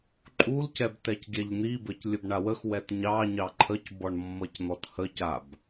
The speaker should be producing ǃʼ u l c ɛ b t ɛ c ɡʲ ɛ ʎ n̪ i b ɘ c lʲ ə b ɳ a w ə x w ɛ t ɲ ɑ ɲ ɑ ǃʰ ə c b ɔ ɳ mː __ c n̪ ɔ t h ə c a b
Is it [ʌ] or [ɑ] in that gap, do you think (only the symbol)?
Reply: ʌ